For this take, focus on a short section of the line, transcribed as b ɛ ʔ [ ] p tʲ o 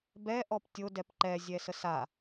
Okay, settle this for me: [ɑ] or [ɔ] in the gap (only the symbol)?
ɔ